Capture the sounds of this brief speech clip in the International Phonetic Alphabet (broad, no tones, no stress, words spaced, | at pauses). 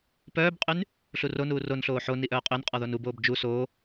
pœːbqʼyn | ɬuronuː ronɬoː ħo niʔœːqʼønqʼɔ ðonuboːb d͡ʒu soː